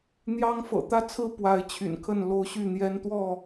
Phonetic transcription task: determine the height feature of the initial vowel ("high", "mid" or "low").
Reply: low